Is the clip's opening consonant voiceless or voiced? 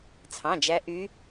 voiceless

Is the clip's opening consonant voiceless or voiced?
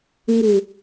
voiced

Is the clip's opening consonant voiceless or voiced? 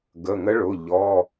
voiced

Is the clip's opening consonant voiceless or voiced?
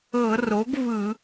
voiced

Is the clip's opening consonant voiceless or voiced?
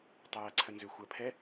voiceless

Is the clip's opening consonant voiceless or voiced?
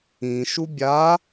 voiceless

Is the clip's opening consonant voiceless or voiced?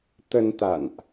voiceless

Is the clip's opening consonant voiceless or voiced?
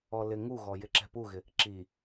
voiced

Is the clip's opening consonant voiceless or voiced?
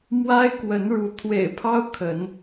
voiced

